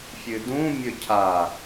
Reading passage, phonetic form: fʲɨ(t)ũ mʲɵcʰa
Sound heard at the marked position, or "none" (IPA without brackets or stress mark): d